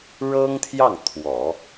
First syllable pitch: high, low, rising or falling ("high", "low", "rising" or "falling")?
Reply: high